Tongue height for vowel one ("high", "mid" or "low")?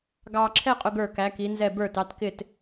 low